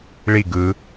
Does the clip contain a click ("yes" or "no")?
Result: no